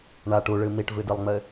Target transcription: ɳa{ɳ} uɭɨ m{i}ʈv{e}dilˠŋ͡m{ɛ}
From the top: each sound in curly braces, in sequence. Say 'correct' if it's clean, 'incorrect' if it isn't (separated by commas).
incorrect, correct, incorrect, incorrect